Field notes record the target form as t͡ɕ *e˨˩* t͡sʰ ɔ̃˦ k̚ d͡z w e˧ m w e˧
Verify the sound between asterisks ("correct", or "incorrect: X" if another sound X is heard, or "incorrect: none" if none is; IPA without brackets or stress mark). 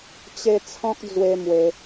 incorrect: e˧